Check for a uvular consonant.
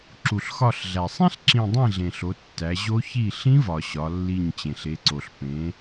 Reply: absent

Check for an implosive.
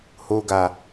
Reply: absent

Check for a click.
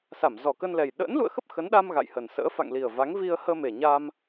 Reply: absent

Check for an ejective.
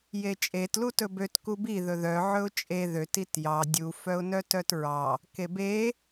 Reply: present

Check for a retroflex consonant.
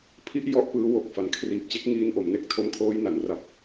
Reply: absent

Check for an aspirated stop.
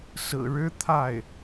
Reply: present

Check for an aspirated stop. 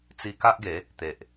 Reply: absent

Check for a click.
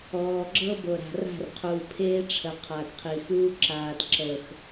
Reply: present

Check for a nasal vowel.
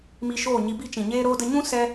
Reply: present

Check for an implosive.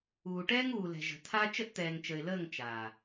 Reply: absent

